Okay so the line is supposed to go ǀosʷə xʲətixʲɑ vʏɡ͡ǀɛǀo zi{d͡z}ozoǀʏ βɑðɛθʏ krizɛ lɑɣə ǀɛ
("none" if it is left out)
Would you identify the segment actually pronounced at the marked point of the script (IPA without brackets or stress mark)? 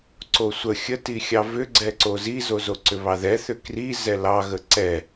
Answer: z